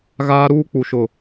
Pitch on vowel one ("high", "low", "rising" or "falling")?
high